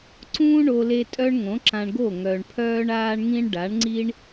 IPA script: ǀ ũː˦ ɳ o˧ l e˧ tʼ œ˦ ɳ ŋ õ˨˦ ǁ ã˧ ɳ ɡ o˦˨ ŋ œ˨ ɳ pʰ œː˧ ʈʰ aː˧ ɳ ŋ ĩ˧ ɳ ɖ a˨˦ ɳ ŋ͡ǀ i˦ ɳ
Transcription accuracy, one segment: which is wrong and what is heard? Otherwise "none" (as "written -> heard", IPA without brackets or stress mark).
ʈʰ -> ɳ